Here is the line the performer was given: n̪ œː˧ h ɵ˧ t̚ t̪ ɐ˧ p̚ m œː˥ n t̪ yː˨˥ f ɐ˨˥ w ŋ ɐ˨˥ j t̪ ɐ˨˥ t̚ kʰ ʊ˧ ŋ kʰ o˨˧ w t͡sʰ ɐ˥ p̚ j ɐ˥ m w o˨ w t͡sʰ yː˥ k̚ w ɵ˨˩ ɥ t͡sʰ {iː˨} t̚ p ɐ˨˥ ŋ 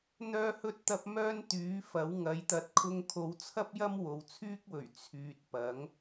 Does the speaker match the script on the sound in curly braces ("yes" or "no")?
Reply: no